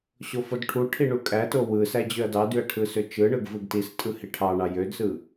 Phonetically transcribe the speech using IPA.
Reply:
ɕ o f o d ʈʰ u ʈʰ i ɳ u kʼ æ t o w ɯ s æ d͡ʑ ø ɐ̯ d ɑ d y ɐ̯ ʈʰ ɯ s ø t͡ʃ ɯ ɳ ɯ ɡ v ɯ ɡ t i s tʼ ɯ h i ʈʰ ɑ ɳ ɑ j ø d s ɯ

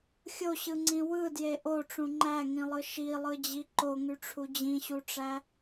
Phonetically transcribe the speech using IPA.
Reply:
xʲ o ɕ ɯ ŋ͡ǀ ĩ w ɯ d j e ʔ o ʈ͡ʂ ũ ŋ͡ǃ æ ŋ ĩ lˠ ɯ ʃ i lˠ ɯ d͡ʑ i ǃ o ŋ y ʈ͡ʂʰ u d͡ʑ ĩ ɕ u ʈ͡ʂ æ

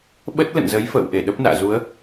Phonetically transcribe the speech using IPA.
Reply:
ɓ ə˦˥ t̚ l ə̰˧˨ n z ə˨˦ j f ə̰ː˧˨ w ʔ e˧˩ ɗ ə˦˥ p̚ n a̰ː˧˨ z u˨˦ ə̯

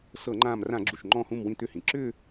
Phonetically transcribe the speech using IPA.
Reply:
s ɤ˧˩˧ ŋ͡ǃ ãː˧˩ m r ã˧˩˧ ɡ͡ǁ u˩ ʃ ŋ͡ǃ ɔ̃ː˧˩ h ũ˧˩ m w ĩ˧˩ t̪ ʏ˧˩ h ĩ˩ ǁ ʏ˥˧

